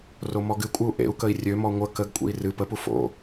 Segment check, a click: absent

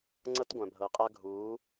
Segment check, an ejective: present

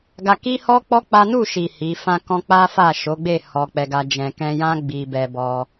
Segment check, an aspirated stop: absent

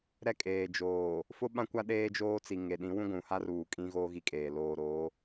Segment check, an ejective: present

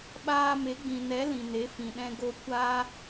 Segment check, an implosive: present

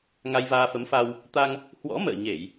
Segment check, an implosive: absent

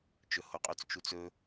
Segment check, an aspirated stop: absent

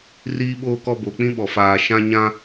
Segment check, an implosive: present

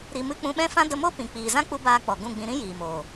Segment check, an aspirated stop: absent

